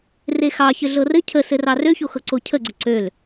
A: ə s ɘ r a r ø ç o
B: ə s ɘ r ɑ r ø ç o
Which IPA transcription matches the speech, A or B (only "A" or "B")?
B